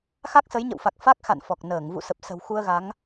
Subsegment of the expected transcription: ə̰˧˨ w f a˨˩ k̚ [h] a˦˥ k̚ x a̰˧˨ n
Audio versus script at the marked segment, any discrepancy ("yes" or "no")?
yes